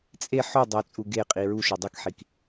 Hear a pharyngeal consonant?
yes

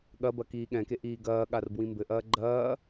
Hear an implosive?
yes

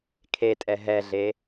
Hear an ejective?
yes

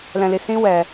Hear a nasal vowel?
yes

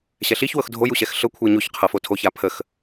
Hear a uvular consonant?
yes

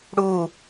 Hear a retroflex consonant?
yes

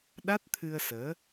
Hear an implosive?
yes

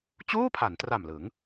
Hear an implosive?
no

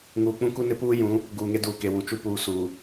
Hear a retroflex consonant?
no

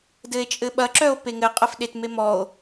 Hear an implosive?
yes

